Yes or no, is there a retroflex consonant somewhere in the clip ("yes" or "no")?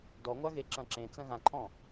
no